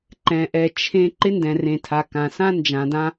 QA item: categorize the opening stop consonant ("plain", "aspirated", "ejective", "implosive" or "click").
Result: click